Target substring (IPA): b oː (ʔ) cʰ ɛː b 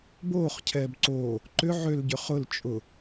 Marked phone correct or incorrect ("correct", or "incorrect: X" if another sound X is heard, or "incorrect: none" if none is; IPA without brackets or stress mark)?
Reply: incorrect: χ